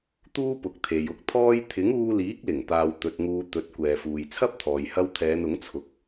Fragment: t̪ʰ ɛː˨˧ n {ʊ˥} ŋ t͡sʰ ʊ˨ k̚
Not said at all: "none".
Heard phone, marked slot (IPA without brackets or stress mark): ʊ˨˥